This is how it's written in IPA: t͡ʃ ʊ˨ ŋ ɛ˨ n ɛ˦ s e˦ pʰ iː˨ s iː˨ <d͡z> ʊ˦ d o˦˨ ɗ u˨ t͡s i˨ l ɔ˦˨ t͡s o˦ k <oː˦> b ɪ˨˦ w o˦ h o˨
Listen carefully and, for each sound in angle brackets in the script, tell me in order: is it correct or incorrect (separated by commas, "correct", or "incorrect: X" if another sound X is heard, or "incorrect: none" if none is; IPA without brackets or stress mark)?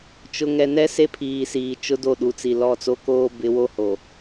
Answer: incorrect: t͡ʃ, correct